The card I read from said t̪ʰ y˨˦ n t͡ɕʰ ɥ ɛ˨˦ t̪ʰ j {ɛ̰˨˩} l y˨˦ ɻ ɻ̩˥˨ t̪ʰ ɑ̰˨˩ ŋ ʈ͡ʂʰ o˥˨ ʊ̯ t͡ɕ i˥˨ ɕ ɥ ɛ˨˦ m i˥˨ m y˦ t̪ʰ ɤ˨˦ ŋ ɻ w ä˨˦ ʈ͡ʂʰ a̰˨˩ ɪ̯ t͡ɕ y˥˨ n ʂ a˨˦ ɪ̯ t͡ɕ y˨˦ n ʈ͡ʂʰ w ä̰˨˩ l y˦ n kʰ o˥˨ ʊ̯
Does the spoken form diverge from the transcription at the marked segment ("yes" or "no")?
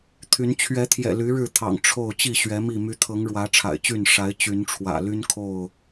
no